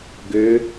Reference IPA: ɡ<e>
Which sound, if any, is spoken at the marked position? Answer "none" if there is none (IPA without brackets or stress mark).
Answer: ø